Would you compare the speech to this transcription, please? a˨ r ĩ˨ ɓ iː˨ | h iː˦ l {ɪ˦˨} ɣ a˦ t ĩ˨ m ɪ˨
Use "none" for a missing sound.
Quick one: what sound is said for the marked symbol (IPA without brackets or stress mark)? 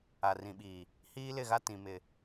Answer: ɪ˦˨